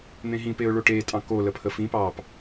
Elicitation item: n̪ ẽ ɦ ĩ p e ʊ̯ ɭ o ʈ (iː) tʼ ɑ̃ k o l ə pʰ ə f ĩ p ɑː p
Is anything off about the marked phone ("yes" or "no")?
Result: yes